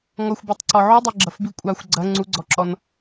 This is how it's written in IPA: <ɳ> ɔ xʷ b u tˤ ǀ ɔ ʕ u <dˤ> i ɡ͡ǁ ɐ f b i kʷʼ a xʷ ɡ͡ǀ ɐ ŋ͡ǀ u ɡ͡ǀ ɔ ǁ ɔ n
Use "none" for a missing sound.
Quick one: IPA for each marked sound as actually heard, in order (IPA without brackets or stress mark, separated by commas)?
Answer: ŋ, dˤ